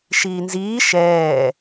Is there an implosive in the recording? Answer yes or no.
no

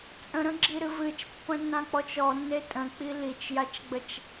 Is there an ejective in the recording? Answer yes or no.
yes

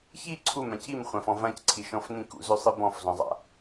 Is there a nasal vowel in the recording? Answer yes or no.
yes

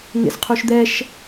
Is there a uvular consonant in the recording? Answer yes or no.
yes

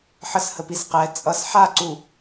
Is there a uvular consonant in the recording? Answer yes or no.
yes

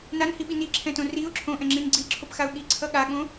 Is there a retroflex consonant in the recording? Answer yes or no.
no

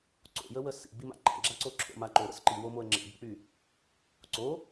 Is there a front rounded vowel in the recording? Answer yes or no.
yes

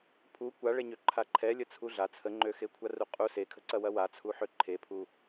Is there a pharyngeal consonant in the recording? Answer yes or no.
yes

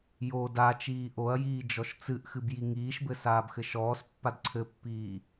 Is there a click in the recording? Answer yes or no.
yes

